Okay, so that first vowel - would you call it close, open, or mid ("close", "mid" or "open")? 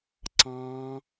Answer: open